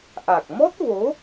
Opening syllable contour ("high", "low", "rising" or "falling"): low